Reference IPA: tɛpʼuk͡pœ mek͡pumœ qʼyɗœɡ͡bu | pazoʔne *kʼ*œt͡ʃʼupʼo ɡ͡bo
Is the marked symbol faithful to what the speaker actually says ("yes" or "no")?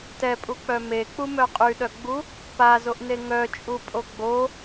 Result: no